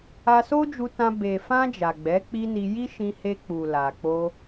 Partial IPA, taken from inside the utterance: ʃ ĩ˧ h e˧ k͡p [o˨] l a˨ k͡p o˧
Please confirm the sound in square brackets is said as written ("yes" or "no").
no